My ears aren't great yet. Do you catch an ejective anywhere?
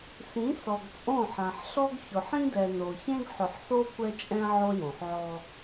yes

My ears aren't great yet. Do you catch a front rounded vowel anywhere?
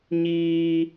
no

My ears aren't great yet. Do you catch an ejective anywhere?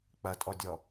yes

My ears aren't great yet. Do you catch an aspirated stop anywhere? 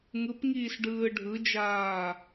no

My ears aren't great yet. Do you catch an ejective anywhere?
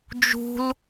no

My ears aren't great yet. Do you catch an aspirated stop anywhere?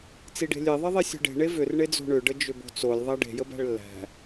no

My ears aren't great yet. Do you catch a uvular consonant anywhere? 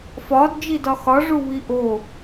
no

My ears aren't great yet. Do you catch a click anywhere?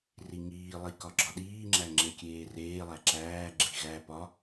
yes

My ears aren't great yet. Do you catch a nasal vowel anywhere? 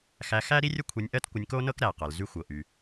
no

